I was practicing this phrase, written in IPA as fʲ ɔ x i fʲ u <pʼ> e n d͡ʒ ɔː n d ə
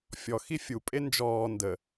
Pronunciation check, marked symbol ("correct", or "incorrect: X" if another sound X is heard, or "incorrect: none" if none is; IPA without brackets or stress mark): correct